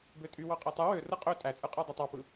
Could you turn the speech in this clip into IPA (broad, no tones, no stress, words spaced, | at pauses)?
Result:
bøtʼy wɑqʼetˤɯ wø rɯqʼø tʼæt͡sʼɯqʼæ dˤutˤɑpɯ